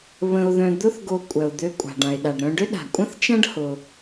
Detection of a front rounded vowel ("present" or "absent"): present